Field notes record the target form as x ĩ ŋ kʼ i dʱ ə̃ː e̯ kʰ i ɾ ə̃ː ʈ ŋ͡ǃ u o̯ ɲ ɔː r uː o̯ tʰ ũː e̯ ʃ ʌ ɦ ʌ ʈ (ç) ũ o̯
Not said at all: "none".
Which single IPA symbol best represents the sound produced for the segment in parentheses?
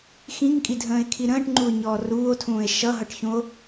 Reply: ç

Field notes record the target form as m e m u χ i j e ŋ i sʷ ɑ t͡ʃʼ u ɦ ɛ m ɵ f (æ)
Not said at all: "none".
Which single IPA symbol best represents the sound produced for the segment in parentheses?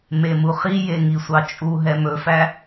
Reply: æ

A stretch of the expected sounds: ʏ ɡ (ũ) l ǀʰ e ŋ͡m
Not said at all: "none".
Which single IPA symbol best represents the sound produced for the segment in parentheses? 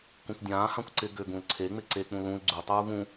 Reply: ũ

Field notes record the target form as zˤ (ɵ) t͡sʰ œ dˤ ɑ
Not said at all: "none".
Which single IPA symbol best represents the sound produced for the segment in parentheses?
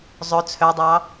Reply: ɵ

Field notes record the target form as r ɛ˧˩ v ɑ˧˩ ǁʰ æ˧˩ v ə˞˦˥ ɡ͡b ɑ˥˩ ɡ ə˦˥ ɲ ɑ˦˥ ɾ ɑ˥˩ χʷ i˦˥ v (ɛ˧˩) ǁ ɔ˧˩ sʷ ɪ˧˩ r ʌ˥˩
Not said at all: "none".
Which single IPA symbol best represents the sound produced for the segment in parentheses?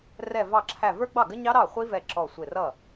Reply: ɛ˧˩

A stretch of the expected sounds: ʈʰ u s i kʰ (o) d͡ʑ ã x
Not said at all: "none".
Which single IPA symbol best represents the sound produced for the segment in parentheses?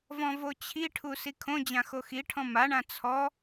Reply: õ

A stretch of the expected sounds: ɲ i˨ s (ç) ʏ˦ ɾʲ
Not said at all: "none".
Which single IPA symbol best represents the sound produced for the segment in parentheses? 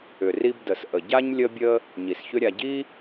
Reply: ç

